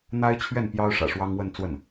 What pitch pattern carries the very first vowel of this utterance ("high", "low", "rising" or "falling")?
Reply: high